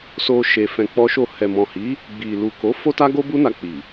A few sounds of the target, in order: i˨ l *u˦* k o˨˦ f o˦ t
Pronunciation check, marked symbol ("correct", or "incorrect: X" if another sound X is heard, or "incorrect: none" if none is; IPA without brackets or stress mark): incorrect: u˨